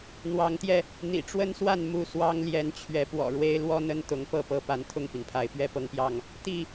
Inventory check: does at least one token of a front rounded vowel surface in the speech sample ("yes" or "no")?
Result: no